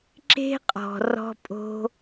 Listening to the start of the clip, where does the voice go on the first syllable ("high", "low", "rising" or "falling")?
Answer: high